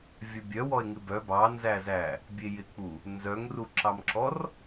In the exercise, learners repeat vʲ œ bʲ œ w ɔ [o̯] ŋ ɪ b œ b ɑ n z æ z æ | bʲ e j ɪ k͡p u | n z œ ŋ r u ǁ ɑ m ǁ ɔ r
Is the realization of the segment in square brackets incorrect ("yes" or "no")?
yes